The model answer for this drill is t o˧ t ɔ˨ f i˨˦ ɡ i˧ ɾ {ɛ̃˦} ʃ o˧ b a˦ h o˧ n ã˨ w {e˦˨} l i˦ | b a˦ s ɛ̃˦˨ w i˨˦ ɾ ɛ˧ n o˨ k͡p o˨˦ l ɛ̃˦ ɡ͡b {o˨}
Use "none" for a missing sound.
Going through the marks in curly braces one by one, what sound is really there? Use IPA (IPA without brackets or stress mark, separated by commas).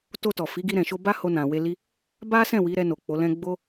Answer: ɛ̃˨, e˧, o˦